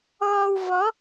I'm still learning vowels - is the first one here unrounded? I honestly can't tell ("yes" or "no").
no